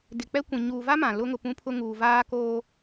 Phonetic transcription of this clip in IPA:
dɪ˨ k͡pɛ˦kʷĩ˨ ɲuː˨va˦ mã˨ lʊ˦ŋʊ˨pũ˦pʰʊ˦ ŋuː˨vaː˦koː˦

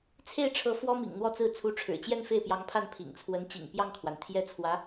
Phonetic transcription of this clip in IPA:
t͡sʰe˥˩ɪ̯ʈ͡ʂʰɤ˧˥ fwɔ˥mḭ˨˩ŋn̪wɔ˥˧t͡sɹ̩˥˩ t͡sʰu˧˥ʈ͡ʂʰɻ̩˨˩t͡ɕjɛ˥˧n fe˥˩ɪ̯pjɑ˧˥ŋpʰa˥˩n pʰḭ˨˩ŋt͡sʰwə˧˥nt͡ɕḭ˨˩ŋ pjɑ˥˩ŋkʰwa˩nt̪ʰjɛ˥ t͡sʰwä˧˥

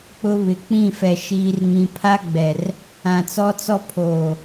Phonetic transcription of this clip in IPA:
k͡pʊ˦ βɪ˨k͡pĩ˦˨fɛ˨ ʃiː˦rŋĩ˦ pʰa˦ɡ͡bɛ˨r | ã˨t͡sɔ˦t͡sɔ˦ pʰoː˨

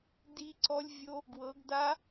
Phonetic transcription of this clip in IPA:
di˦˥ǀɔ˦˥lʲ vʲo˦˥ | ɡwɤ˨˦ɡda˦˥

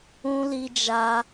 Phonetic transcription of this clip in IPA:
ũ˦li˦d͡ʒa˦

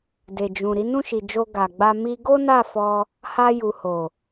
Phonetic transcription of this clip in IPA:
de˨d͡ʒũ˨ ɾi˨˦nũ˦˨ʃi˨d͡ʒo˧ ɡa˨ɡ͡ba˧ mi˧ ɡo˦na˦˨fɔ˧ | ha˧ju˨ho˨

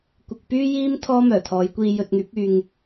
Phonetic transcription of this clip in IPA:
kʷɪ˨k̚ pyː˥jiː˥m t̪ʰɔː˥mœː˨˩t̪ʰɔː˨˧j kʷiː˧jɵ˧t̚ŋyː˨˥p̚ yː˧ŋ

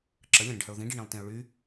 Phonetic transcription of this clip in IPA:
ǁəlʲə̃ɾə̃ɖhəʊ̯ ðĩɖiɳĩlˠtĩʊ̯ ɭy

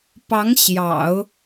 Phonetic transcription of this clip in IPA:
pɑ˧˥ŋ ɕjɑ̰˨˩˦ʊ̯

